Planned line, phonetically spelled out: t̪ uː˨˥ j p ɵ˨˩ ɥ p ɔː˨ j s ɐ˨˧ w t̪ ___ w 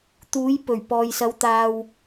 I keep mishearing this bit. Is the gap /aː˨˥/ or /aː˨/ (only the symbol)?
aː˨